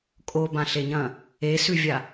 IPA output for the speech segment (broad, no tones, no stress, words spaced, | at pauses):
kʼobãɬeɲɐ̃ | esʉvʲa